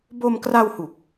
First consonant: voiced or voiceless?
voiced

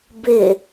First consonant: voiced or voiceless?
voiced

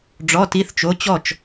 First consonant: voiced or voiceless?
voiced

